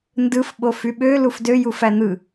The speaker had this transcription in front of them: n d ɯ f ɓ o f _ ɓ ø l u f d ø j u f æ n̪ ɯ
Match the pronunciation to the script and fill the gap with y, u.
y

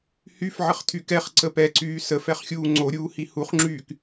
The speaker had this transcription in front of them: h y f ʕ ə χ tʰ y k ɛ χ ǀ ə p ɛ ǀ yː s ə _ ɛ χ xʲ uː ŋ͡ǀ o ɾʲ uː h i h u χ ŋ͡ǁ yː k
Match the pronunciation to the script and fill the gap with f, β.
f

